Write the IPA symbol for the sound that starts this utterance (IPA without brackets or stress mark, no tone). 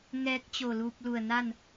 ŋ